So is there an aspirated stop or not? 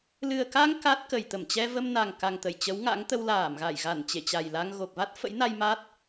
no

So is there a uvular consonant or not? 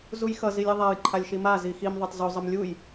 no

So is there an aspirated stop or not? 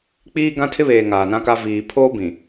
yes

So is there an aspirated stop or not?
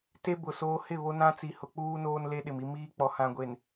no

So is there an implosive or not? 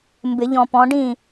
no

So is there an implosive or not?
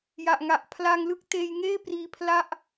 no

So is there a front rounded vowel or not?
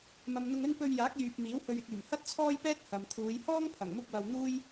yes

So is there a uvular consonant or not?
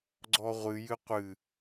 yes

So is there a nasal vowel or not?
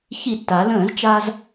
yes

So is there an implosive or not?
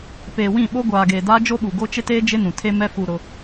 yes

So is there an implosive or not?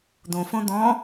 no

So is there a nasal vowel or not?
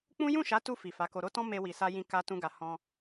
yes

